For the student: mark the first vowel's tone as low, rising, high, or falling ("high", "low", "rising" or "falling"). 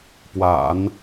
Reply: low